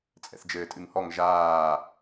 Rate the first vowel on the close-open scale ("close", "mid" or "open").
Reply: mid